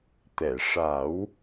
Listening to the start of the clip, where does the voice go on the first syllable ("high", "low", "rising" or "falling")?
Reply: low